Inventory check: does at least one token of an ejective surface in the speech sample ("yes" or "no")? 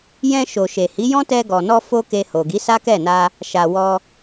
no